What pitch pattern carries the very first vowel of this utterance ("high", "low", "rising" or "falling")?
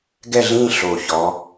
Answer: falling